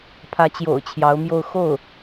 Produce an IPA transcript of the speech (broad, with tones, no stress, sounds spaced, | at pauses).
pʰ ä˧˥ t͡ɕ j o̰˨˩ ʊ̯ t͡ɕʰ j ɑ˧˥ ʊ̯ m j o˥˧ ʊ̯ x o˥˩ ʊ̯